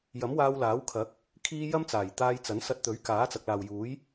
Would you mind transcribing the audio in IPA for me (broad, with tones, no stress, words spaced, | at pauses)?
jɐ˨˥mwaː˧wlaː˨˥wkʰɐ˨˥k̚ | kʰiː˥ jɐ˥mt͡saː˨˩jt̪aː˧jt͡sɐ˨˥n sɐ˧t̚t̪ɵ˨˥ɥ kaː˨˥t͡sɐ˨k̚laː˨wjuː˨˥j